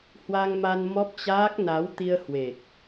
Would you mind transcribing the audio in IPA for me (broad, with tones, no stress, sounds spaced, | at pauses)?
h w a˧ ŋ m a˧ n m ɔ˦˥ p̚ t͡ɕ aː˦˥ k̚ n a˨˦ w t̪ i˧ ə̯ h w e˨˩ k̚